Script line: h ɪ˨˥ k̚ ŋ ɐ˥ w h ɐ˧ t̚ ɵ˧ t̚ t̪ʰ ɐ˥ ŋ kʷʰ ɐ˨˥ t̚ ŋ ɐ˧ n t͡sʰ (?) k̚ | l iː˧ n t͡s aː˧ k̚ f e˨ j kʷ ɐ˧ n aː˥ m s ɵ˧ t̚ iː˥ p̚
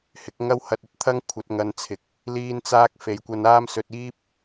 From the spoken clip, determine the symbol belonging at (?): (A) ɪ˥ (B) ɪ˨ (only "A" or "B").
B